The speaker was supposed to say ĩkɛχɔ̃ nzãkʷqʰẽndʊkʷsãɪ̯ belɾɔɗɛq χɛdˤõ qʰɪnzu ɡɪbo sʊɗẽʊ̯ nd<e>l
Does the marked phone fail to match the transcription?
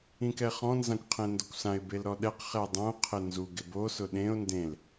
yes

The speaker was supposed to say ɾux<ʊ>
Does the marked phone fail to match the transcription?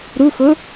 no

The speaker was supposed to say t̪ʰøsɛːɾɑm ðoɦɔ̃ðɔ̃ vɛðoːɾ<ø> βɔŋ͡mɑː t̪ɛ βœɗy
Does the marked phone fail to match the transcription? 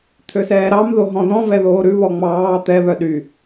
yes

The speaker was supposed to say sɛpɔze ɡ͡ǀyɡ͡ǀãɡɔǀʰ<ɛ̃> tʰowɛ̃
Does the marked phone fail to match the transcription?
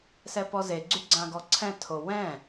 no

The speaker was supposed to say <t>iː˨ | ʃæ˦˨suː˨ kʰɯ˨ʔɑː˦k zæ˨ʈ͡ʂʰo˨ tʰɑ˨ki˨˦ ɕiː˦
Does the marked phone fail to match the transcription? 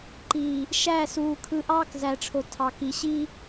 yes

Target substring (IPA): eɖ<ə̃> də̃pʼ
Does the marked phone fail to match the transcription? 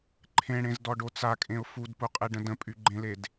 no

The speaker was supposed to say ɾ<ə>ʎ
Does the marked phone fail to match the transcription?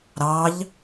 yes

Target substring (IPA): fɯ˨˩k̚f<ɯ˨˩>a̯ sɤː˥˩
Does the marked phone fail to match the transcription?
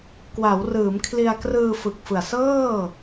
no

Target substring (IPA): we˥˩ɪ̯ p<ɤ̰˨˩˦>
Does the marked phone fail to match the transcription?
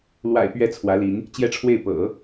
no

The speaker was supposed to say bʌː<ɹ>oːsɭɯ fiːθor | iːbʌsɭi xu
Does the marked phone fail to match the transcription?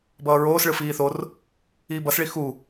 no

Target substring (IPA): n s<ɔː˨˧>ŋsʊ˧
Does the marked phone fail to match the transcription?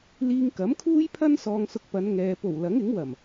yes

